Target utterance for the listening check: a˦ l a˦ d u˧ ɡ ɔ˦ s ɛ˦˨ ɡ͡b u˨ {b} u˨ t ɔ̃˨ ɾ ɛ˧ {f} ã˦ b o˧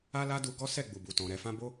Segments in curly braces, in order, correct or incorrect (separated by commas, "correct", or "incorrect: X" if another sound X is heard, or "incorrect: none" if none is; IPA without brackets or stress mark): correct, correct